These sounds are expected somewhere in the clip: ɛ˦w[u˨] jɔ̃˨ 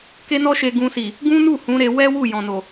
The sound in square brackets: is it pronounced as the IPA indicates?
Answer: no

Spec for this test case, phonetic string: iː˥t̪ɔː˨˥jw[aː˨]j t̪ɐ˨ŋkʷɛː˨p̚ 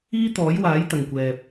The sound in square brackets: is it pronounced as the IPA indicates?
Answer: no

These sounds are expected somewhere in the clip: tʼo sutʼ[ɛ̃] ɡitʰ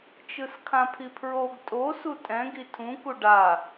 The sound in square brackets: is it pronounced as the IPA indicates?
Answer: yes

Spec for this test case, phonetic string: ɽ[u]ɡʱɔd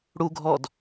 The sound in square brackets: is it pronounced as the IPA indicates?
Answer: yes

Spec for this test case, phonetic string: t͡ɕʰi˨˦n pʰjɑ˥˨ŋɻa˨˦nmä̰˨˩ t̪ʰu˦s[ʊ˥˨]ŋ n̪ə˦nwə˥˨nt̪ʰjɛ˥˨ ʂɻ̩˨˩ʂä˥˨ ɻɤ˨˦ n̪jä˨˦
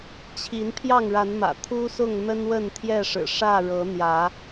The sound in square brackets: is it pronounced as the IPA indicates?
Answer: yes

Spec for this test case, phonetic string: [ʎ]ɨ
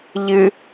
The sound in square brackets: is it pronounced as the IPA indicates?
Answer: yes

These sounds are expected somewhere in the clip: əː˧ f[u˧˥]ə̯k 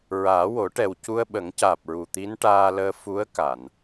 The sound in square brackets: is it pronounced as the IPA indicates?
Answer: yes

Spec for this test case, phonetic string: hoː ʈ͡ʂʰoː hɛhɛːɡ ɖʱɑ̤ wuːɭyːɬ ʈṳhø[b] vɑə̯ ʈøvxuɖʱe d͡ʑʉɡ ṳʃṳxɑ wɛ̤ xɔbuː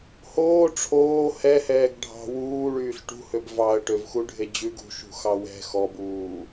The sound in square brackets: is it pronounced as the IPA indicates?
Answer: yes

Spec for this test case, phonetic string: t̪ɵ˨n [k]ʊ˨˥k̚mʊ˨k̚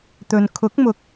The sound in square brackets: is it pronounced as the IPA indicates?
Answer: no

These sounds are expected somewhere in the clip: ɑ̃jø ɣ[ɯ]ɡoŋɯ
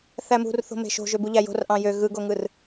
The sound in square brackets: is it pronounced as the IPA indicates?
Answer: yes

